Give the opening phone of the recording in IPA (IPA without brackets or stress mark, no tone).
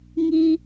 ŋ